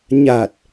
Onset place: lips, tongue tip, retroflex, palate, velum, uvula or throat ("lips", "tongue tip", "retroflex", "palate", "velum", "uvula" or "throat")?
palate